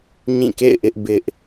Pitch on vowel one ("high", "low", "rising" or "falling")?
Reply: falling